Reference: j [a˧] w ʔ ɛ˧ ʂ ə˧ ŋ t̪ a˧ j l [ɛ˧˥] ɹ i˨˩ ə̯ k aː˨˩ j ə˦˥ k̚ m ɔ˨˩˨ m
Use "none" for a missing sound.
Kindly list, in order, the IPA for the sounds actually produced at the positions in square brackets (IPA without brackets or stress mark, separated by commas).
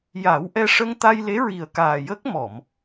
a˨˩˦, e˧˥